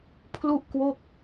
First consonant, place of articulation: labial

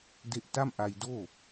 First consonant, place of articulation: alveolar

